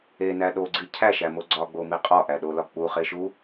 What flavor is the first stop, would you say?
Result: implosive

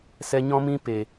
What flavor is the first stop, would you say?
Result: plain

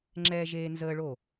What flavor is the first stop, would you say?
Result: click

